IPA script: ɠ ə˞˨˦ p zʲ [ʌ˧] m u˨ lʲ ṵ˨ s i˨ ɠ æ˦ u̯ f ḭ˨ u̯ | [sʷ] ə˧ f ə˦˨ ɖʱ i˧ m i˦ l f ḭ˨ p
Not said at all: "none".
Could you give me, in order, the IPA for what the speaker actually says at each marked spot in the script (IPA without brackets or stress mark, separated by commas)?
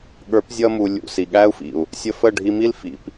ʌ˧, sʲ